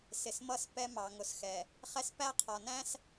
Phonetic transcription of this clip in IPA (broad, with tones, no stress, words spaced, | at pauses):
sɪ˨smʌ˦˨s pɛ˦mɑ˨ ŋʊ˨sxɛ˨ | χɛ˦spæ˦ qʰɒ˨næ̃˦s